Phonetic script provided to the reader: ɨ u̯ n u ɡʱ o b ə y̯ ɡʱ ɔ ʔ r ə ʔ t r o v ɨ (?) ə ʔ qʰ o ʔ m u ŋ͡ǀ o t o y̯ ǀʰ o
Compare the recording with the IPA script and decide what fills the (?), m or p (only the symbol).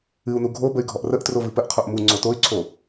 p